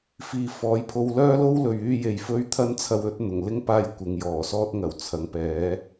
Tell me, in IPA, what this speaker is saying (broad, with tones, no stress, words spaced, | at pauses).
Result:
fiː˨fɔː˨˥jpʰo˧w lœː˥lo˥w lɵ˨ɥ yː˧je˨j fɵ˥ɥ t̪ʰɐ˥nt͡sʰɐ˧wɵ˨˥t̚ n̪ʊ˨˩ŋlɪ˥ŋ paː˥jkʷɪ˨˧ŋjɔː˨˩sɔː˥t̚ ŋɐ˨˩wt͡sʰɐ˨˥ŋpɛː˨˥